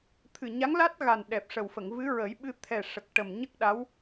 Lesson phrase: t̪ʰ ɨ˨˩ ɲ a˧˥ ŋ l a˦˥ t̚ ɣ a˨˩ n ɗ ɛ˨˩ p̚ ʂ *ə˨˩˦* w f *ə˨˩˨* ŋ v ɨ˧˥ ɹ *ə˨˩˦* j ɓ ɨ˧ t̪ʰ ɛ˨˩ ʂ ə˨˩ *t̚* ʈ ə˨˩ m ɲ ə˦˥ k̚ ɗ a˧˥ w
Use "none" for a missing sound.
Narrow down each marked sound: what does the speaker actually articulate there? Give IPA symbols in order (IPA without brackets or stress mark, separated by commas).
ə˨˩, ə˨˩˨, ə˨˩˦, k̚